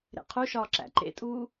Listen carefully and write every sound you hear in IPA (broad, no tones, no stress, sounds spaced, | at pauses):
ɾ ḛ qʰ u ʃ ɒː ǁ æ̰ ǃ ḛ tʼ uː